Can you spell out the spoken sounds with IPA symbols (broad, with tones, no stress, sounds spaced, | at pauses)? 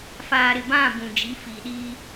f aː˨ ɾ ɪ˨ b ã˦˨ b ũ˨ d͡ʒ i˨˦ f i˨ ɗ iː˦